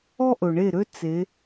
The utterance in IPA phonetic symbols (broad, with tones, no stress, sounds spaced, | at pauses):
ɔ˦ ʔ ɵ˨ ɳ e˦˨ ɾ ø˦ t͡s e˨˦